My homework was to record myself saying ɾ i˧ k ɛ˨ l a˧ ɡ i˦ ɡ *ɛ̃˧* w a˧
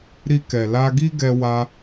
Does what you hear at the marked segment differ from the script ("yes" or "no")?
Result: yes